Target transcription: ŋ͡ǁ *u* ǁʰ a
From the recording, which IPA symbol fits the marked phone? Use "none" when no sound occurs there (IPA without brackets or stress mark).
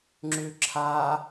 ʉ